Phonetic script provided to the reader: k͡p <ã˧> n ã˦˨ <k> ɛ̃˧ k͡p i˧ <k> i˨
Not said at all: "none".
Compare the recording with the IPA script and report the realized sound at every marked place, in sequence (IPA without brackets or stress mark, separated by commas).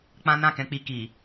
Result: ã˦, k, k